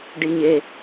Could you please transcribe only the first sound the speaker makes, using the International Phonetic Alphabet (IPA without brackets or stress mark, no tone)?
ɖ